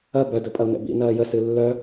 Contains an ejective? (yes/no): yes